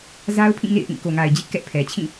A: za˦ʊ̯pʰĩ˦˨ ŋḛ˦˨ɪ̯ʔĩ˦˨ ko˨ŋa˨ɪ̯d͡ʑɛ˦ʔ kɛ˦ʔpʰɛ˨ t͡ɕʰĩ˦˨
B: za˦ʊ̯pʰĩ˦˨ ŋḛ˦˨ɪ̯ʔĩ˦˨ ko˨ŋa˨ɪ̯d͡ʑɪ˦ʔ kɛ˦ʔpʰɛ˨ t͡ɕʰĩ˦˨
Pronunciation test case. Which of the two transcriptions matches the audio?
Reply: B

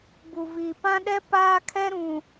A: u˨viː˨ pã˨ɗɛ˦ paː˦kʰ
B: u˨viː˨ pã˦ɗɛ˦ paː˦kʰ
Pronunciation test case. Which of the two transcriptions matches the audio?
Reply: B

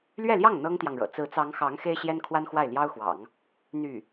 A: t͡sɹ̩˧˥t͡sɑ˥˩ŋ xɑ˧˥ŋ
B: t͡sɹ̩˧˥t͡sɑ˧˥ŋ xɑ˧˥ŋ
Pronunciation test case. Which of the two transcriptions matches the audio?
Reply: B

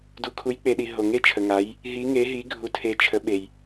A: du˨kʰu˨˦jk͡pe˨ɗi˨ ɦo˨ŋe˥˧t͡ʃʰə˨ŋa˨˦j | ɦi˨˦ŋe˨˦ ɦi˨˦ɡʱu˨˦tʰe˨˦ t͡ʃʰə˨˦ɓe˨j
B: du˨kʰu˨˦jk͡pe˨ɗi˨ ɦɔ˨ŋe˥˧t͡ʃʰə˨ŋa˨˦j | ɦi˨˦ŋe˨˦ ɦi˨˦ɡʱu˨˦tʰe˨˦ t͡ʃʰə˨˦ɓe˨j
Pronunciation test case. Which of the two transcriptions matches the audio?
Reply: A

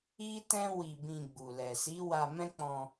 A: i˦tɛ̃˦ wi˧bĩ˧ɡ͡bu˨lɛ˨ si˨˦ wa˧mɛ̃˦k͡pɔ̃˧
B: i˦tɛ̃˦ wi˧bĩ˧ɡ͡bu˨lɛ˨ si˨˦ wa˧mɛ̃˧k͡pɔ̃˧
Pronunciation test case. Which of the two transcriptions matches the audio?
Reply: A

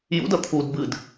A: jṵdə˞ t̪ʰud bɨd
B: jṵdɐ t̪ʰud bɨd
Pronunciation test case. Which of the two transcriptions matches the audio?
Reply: B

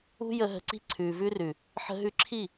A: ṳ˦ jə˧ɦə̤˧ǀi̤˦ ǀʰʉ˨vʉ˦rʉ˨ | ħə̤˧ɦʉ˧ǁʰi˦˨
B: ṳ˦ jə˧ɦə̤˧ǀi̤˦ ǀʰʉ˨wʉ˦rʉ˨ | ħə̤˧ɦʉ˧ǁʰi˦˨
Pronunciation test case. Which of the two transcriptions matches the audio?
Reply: A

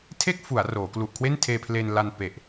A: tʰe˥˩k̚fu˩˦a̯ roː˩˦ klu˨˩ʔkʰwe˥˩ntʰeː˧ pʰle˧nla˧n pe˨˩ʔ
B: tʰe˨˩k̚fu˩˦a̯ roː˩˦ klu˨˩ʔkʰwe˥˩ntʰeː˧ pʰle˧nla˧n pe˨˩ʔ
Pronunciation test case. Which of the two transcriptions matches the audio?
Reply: A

